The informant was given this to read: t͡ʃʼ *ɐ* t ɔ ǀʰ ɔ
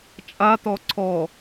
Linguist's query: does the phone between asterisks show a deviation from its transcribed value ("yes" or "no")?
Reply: yes